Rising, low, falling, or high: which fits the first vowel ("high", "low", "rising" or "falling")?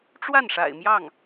falling